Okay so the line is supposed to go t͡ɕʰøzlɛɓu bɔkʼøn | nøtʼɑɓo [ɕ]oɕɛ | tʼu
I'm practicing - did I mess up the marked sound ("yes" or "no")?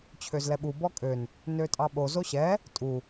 yes